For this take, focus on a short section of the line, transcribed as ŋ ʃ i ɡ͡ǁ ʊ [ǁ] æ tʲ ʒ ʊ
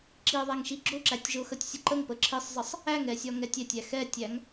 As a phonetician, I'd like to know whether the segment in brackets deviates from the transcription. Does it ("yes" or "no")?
no